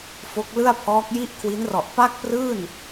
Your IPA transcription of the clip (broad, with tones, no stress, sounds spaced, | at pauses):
f o˦˥ k̚ l ɯ˥˩ a̯ pʰ ɔː˦˥ k̚ j i˥˩ ʔ kʰ w i˦˥ n r ɔ˨˩ ʔ p a˥˩ k̚ p r ɯː˥˩ n